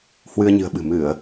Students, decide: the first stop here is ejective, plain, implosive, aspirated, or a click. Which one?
implosive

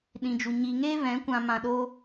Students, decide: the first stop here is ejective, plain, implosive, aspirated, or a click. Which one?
implosive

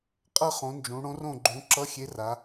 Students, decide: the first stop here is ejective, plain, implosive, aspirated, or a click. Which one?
ejective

